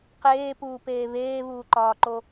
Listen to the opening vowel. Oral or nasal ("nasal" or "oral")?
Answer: oral